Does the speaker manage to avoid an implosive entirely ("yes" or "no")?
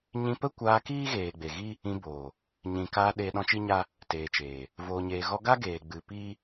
no